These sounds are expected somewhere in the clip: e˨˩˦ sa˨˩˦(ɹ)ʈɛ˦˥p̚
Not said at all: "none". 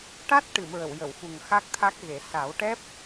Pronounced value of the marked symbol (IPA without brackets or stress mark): w